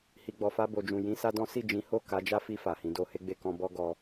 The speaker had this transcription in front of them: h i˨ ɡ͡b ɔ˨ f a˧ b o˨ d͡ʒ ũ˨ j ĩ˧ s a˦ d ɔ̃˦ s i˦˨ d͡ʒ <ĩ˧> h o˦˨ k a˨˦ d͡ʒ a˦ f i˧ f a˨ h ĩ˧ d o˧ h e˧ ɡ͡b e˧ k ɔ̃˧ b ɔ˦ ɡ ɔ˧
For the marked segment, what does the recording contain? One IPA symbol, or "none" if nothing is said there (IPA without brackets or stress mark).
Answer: ĩ˨˦